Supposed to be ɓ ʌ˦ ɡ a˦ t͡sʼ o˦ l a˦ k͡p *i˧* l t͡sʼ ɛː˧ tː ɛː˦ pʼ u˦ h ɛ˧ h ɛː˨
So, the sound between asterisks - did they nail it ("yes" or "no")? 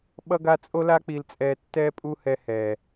yes